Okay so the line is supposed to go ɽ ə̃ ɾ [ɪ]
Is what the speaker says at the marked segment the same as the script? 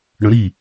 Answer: no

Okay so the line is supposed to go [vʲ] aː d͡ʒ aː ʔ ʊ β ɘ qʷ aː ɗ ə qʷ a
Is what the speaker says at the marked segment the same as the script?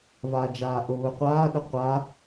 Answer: no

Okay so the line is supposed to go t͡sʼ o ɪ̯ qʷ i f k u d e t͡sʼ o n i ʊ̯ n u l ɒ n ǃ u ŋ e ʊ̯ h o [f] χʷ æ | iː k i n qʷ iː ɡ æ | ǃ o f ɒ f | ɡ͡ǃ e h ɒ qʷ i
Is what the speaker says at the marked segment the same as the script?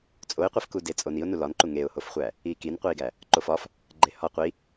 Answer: yes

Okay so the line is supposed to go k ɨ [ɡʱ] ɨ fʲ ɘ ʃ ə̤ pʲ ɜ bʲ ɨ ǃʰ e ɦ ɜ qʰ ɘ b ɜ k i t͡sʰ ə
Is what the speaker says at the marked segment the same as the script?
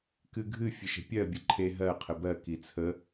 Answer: yes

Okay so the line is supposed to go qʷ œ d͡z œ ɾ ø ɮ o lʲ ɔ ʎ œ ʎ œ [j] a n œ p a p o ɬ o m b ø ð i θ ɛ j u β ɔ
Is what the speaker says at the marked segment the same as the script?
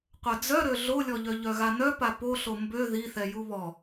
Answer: no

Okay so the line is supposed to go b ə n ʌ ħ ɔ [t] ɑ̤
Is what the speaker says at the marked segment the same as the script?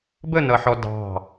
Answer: no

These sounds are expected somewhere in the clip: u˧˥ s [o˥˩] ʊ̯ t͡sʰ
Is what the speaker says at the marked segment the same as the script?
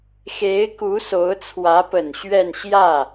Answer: no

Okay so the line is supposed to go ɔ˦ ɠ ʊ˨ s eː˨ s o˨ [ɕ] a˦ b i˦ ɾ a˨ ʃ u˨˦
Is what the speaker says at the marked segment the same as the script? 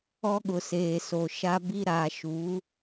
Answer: no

